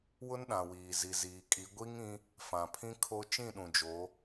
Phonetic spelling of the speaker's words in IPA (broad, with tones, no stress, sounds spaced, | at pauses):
w ʊ˦ n ɗ ã˨ w iː˨ z i˨ z iː˨ kʼ i˨˦ ɡʷ i˦ ŋ ĩ˦ | f ã˨ pʰ ĩ˦ kʰ o˦ t͡ʃ ĩ˦˨ ɗ ũ˨ d͡ʒ o˨˦